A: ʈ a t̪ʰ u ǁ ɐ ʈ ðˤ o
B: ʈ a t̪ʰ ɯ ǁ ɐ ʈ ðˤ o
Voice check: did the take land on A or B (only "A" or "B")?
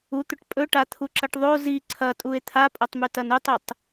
A